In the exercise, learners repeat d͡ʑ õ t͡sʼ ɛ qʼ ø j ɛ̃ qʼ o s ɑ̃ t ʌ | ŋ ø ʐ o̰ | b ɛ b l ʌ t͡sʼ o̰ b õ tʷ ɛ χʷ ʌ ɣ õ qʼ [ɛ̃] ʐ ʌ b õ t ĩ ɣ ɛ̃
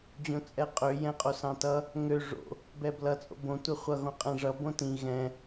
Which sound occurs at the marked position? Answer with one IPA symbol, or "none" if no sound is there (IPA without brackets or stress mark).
ɛ̃